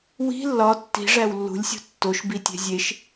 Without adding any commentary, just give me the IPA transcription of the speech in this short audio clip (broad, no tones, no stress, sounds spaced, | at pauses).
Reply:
w i̤ lː ɒ tː i̤ ʐ æ w lː ṳ lʲ sʲ ṳ tː o ʃ b i tʲ e̤ zʲ e ʃ